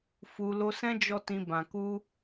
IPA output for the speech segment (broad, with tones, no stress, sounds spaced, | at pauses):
f u˧ l o˧ s ɛ̃˦ d͡ʒ ɔ˦ t ĩ˧ b ã˨ k u˧